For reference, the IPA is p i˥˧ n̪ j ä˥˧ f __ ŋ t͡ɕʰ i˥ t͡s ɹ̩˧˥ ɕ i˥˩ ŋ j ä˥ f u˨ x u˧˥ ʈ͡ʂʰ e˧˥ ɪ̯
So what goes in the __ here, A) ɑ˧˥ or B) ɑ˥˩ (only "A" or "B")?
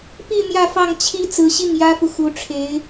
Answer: B